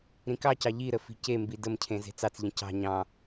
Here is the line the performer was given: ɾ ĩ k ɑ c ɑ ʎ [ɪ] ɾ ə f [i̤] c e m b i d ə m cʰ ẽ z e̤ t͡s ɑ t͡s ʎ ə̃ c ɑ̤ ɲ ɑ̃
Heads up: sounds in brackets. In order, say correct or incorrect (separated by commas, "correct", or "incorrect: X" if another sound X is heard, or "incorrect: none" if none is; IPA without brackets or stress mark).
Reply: incorrect: i, correct